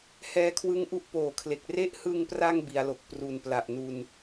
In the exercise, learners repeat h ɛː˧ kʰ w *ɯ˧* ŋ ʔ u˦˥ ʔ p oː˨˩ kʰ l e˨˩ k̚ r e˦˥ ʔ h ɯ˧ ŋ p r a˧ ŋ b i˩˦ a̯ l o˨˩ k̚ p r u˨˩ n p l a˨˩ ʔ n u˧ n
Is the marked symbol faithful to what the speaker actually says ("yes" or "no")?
no